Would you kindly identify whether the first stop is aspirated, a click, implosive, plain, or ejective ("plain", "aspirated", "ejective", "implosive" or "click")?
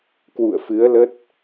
plain